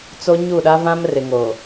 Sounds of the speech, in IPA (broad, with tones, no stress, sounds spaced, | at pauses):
t͡s o˦ ɲ u˦˨ ɗ a˦ v ã˦ m r ɪ˨ ŋ o˨